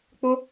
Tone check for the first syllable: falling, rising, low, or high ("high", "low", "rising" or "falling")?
high